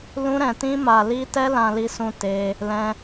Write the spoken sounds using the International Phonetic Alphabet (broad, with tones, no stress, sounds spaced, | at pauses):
l ũ˦ ɾ ɛ̃˧ t ĩ˦ m a˧ l i˦ t ɛ˦ l ã˧ l i˧ s ũ˧ t e˦ | l ɛ̃˦